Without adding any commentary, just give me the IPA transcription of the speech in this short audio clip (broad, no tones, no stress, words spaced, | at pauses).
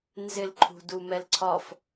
nzɪlǃʰṳdu mɛlǀʰɒf